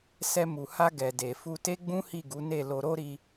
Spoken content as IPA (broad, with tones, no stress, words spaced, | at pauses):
sɛ˧mu˨ha˧ ɡɛ˨de˨fu˧ te˦ɡ͡bũ˦ hi˦˨ɡu˨˦ne˦˨ lo˧ɾo˦ɾi˧